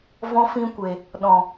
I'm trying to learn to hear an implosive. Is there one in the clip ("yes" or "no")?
yes